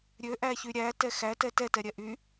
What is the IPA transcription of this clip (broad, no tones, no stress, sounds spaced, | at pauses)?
ɾʲ ø ʔ æ ç y ɾʲ æ t ɛ x æ t ɛ t ɛ t ɛ ɾʲ ɛ ʔ y